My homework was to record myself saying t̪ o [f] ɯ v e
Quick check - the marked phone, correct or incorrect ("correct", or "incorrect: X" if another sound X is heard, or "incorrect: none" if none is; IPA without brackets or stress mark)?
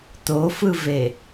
correct